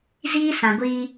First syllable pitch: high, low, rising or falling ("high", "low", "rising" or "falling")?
high